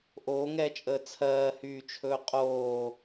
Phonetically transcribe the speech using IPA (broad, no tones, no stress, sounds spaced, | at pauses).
ʔ oː ŋ ɛː t͡ʃʼ əː t͡sʰ ɜː h yː t͡ʃʰ ɵː qʼ oː